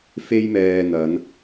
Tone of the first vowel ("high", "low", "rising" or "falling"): high